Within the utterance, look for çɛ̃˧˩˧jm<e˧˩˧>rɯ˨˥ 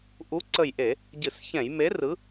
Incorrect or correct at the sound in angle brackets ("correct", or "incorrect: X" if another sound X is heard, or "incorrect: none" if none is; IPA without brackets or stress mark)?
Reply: incorrect: e˨˥